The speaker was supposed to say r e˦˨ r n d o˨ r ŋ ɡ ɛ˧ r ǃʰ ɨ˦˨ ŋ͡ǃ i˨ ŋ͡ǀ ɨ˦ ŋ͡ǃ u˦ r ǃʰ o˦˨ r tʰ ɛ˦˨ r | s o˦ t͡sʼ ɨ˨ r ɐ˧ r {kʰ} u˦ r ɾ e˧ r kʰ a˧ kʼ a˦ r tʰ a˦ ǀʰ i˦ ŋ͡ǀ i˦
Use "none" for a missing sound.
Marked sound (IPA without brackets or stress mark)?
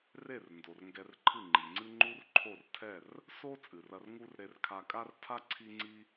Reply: ŋ